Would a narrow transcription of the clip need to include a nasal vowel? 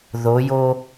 no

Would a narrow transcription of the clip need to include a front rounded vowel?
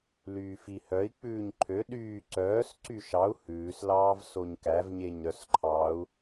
yes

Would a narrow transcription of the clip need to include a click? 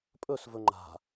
yes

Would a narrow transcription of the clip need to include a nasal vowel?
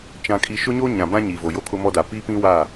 yes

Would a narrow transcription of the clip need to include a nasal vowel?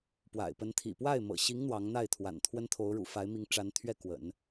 no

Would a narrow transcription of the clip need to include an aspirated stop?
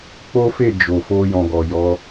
no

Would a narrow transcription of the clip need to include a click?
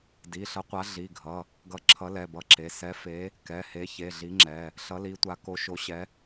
yes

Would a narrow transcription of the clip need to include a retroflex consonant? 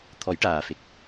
yes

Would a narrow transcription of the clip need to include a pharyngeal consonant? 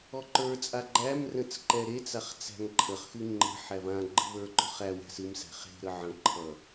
yes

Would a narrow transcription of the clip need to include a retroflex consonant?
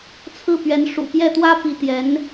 yes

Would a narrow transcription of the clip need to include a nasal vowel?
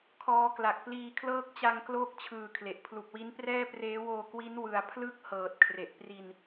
no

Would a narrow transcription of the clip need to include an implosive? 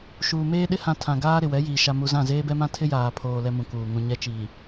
yes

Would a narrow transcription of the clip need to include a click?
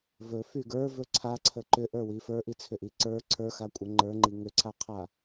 yes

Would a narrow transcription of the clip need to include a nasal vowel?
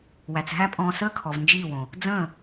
yes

